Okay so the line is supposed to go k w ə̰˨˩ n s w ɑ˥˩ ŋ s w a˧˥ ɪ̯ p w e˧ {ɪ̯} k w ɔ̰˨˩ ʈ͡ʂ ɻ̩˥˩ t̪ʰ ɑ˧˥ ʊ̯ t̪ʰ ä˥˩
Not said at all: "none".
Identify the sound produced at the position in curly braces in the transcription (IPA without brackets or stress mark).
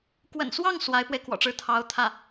ɪ̯